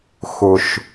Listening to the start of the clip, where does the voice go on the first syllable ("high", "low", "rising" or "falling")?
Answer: low